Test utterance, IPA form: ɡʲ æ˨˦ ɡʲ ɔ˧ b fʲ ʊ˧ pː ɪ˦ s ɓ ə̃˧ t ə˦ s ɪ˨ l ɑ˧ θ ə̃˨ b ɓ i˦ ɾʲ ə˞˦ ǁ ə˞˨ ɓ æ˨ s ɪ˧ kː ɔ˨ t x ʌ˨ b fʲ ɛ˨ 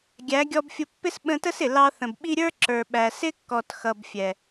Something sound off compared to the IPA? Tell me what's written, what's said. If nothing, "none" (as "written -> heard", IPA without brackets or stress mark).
none